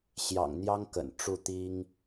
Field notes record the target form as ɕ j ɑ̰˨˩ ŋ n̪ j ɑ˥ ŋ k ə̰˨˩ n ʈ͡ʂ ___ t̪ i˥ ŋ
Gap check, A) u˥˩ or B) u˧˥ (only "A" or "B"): A